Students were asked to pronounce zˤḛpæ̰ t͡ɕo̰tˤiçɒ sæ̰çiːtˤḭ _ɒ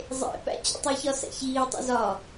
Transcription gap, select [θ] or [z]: z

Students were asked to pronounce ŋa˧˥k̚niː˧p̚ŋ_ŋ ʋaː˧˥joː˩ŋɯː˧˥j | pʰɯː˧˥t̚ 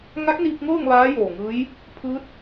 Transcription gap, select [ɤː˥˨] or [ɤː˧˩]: ɤː˥˨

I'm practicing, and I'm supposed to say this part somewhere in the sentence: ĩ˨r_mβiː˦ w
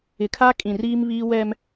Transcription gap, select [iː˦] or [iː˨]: iː˦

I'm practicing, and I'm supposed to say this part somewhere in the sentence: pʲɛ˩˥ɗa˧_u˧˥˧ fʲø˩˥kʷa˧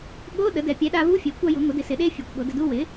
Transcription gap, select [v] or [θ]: v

